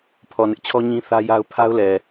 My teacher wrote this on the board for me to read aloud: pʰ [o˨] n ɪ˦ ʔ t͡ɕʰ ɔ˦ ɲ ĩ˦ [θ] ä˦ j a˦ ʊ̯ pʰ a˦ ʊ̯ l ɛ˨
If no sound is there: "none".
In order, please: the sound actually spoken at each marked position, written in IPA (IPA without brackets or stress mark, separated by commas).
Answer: ɔ˨, θ